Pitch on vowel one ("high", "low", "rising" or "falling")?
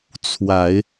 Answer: low